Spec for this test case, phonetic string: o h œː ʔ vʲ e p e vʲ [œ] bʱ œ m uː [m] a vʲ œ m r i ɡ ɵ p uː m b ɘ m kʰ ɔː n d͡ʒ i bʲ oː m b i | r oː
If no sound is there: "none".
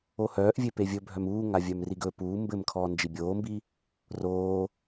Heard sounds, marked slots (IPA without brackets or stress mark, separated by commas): ɵ, ŋ